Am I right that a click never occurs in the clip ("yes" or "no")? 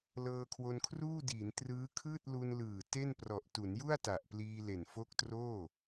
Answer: yes